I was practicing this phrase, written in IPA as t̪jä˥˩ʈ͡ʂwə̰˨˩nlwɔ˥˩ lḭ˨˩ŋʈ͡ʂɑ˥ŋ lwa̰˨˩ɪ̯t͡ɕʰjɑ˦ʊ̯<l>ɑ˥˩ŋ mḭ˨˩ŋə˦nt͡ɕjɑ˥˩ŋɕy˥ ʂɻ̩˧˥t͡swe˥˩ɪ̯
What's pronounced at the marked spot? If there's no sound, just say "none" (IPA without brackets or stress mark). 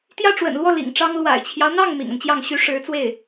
n̪